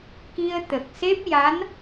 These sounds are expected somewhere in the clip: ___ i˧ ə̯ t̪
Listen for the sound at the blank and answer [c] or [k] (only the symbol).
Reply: k